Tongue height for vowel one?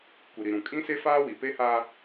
high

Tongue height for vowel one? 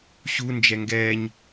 high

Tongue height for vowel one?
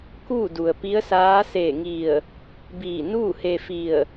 high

